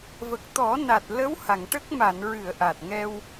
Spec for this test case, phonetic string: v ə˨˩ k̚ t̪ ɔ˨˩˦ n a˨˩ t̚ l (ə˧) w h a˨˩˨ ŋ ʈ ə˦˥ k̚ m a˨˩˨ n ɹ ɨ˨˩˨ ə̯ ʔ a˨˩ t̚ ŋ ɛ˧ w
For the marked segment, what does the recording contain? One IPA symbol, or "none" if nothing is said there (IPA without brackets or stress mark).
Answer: ə˧˥